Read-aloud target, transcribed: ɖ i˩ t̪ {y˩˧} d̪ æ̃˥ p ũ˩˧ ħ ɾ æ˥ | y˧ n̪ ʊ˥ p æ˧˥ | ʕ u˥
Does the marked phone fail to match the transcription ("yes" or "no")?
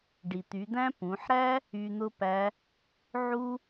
no